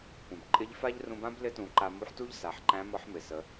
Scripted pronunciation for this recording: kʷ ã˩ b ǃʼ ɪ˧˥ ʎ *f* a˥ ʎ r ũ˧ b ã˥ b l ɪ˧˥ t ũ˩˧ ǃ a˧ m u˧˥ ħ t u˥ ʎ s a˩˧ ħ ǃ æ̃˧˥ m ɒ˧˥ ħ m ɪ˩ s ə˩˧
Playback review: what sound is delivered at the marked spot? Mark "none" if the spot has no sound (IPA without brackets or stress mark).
f